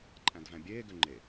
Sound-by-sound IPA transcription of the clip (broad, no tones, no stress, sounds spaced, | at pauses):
ǃʼ æ̃ d v æ̃ bʲ eː ɡ ø ŋ͡ǃ e